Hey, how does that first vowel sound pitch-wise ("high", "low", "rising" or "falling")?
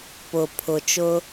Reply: low